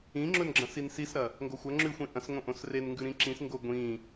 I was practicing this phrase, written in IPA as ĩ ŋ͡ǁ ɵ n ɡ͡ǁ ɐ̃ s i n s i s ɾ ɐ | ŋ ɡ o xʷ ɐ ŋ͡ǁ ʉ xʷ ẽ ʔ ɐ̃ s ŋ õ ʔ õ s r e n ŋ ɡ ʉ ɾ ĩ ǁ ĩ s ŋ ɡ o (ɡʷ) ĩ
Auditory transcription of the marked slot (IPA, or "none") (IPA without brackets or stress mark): ɡʷ